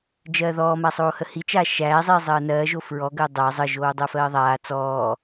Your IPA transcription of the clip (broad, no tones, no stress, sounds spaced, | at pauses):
d͡ʒ ɜː ð ɔː m a sˤ oː h ə h i t͡ʃ a ʃ æː zˤ iː zˤ ɜː n ɜː ʒ o f ɹ ɔ ɡ ɜ dˤ æ zˤ ə ʒ oː dˤ ɜ f ɜː ðˤ aː t͡s ɔː